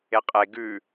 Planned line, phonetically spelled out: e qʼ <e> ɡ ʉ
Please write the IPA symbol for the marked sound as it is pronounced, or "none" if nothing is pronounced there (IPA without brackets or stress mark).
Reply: e